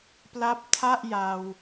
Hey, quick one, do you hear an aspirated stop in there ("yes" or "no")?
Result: yes